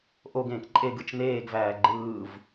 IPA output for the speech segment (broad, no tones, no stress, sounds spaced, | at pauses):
ʔ o ɡ ẽː k ǃʼ e ɡ ɯ t͡ʃ n eː ɡ v æː ɡ͡ǃ ɯː v